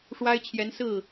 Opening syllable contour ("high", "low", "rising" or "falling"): high